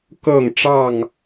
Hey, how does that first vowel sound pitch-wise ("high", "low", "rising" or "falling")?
falling